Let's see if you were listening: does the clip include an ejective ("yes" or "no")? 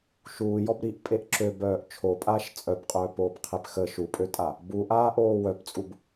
yes